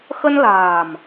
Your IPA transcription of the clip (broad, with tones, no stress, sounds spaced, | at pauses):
x ə˧ n l a̤ː˨˩ m